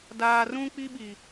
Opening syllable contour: low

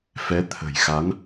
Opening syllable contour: rising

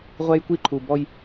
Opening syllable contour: high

